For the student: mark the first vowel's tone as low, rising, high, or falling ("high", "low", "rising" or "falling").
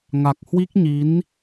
low